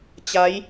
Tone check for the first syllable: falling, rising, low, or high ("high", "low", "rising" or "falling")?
rising